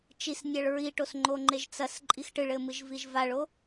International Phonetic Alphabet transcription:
t͡ʃisnʲaɭ ɹiʈosŋ͡ǃoŋ͡ǃeʒ t͡sɐs ǃʼixʈɨɭɘmɨʒ viʒvaɭo

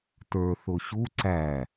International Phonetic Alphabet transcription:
tə˞θʊ ɕu ǀæ

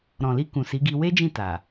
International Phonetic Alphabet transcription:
ɾɔ̃˨li˧ kũ˨si˨˦ɡi˧ we˦d͡ʒĩ˦˨ ta˨

